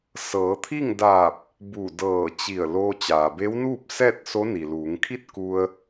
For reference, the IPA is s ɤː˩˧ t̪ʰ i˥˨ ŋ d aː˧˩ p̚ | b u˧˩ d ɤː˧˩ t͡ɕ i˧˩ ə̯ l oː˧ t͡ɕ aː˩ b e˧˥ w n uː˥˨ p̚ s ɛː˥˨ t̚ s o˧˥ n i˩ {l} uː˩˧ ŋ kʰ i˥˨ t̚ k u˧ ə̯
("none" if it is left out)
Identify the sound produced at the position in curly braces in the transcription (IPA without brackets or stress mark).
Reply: l